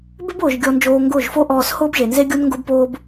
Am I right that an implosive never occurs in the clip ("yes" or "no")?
yes